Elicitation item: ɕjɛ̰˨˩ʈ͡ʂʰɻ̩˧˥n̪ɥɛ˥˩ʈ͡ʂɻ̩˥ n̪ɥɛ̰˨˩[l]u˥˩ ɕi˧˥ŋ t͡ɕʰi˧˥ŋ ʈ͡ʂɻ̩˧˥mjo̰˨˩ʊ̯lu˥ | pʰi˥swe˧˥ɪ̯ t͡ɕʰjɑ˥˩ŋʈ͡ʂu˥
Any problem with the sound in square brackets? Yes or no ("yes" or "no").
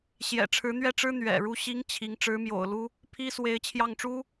yes